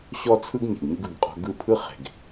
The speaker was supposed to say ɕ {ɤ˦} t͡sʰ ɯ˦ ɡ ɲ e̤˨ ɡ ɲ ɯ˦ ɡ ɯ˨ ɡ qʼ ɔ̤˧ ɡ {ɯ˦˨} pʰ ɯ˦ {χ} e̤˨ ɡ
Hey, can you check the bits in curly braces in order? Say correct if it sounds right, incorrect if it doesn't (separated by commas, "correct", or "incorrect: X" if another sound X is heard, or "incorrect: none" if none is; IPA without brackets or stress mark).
incorrect: ɔ˦, correct, correct